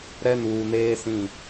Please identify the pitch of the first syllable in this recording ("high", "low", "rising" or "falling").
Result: high